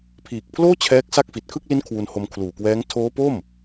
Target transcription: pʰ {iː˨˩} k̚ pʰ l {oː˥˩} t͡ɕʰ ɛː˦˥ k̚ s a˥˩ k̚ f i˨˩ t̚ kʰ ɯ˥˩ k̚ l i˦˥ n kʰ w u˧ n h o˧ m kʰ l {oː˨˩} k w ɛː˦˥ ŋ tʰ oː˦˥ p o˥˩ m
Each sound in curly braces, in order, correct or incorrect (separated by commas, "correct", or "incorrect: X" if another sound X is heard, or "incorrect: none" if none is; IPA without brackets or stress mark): correct, correct, incorrect: uː˨˩